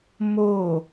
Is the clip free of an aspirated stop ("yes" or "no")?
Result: yes